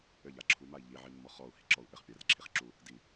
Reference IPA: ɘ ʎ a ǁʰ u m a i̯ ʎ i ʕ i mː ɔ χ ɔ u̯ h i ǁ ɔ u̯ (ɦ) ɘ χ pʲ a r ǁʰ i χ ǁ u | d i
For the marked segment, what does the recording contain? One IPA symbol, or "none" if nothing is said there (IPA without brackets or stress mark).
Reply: ʔ